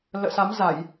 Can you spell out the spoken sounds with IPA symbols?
l ə̰ː˧˨ s a˨˦ m z a˧˩˨ j

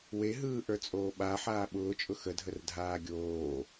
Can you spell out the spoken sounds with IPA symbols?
w e ɦ ɯː ʔ ə˞ t͡sʼ oː ɓ a ħ aː ɓ ʊː t͡ʃʼ ʊ x ə dʱ ə r dʱ aː ɡʲ oː

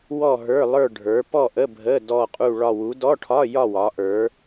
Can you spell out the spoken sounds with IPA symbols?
w ɔ˥˧ ɦ ə˞˧˥˧ lˠ ə˞˥˧ ɖʱ ə˞˨˦ p ɔ˥˧ ʔ ə˧˥˧ bʱ ə˧˥˧ d ɔ˥˧ qʼ u˥˧ ɭ ɒ˥˧ w u˨˦ d ɔ˧˥˧ ʈʰ ɒ˧˥˧ j ɒ˥˧ w ɒ˨˦ ʔ ə˞˨˦

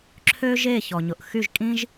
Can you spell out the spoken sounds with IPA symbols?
ǁʰ ø˥ ʒ e˥˩ ç ɔ˩ ɲ ʊ˩ ʔ x y˥˩ ʒ kʼ ĩ˥ ʒ

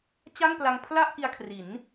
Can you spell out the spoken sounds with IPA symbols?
t͡ɕ a˥˩ ŋ p l a˧ ŋ pʰ l a˥˩ ʔ k i˧ a̯ kʰ r i˩˦ n

